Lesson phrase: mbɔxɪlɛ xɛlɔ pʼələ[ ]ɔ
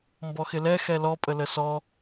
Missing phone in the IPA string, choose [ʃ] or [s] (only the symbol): s